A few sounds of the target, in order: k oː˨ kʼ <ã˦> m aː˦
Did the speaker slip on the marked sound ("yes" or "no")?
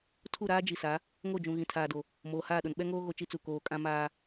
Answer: no